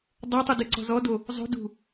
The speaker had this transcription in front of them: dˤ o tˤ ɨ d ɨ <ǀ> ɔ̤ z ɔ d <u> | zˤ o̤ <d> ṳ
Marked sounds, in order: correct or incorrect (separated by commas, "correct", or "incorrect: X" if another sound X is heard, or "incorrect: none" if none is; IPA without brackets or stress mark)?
correct, incorrect: o, correct